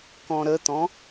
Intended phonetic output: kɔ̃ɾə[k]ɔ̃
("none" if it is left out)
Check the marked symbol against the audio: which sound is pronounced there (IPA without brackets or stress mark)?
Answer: t̪